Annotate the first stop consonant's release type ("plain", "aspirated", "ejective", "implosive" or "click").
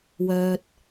plain